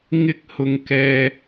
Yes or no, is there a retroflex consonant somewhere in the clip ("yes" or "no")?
no